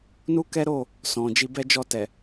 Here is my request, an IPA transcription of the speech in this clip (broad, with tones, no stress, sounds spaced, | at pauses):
n u˦ k ɛ˦ ɾ o˦˨ | s ɔ̃˨ d͡ʒ i˧ b ɛ˦ d͡ʒ ɔ˦˨ t ɛ˨